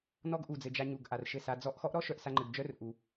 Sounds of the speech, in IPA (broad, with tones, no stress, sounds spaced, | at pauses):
n ɔ˦ ɡ ʔ u˨ d͡z ɘ˨ d͡ʒ a˧ ɲ u˨ ɡ ʔ a˨ r ʃ ɘ˦˨ s a˧ d͡z ɔ˧ ʔ x ɔ˦ ʔ ɾ ɔ˦ ʃ œ˨ ʔ s a˧ ŋ͡ǃ ɘ˨ ɡ d͡ʒ œ˦ r ʔ u˨